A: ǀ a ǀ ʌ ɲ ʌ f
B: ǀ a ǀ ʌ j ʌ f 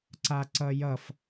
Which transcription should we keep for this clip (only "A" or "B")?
B